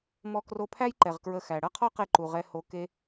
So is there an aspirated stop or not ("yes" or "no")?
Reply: yes